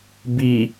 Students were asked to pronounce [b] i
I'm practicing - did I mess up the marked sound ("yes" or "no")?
no